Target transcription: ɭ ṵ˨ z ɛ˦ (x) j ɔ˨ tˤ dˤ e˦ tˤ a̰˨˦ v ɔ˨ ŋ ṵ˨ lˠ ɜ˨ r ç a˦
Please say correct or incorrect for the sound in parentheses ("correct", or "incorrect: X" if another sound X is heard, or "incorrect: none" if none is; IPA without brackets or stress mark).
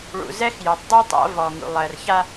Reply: correct